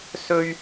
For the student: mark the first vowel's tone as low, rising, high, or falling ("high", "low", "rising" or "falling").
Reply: high